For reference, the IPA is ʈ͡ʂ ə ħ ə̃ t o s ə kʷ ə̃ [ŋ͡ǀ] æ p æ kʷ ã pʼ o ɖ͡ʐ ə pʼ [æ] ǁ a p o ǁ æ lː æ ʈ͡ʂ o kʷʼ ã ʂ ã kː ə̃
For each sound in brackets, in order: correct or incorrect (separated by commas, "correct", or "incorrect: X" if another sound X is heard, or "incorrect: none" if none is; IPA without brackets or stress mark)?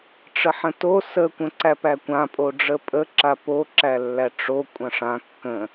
incorrect: ǀ, incorrect: ə